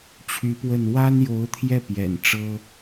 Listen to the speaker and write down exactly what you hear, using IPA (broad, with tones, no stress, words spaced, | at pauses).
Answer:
t͡ɕʰy˧˥pwə˥˩n wa˥njo˧˥ʊ̯t̪ʰjɛ˥˩ pjɛ̰˨˩n ʈ͡ʂɤ˥